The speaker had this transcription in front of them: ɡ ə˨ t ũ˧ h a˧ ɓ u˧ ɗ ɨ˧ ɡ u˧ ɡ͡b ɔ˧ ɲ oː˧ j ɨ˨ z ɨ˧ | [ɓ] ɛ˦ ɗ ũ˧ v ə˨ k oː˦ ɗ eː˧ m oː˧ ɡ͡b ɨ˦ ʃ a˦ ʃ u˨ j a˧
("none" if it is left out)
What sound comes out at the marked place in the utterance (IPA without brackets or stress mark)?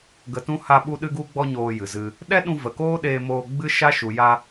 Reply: ɗ